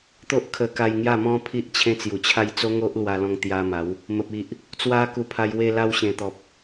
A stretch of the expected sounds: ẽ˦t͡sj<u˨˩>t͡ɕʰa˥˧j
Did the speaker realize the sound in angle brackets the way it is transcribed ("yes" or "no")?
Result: yes